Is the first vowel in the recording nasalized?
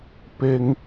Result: no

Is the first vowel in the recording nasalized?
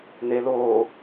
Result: no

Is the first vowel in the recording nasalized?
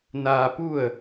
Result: no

